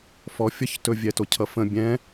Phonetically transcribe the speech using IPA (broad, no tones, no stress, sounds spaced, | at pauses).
f ɔ fʲ ʌ ç t ɵ vʲ ɛ t o cʰ ʌ f ə̃ bʲ ɛ̃